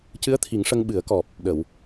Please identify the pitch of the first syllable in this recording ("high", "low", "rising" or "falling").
rising